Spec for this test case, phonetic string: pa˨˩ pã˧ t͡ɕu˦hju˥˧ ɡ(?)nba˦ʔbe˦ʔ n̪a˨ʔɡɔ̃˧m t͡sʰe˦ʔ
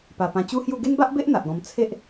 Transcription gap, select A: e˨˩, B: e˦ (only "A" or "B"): B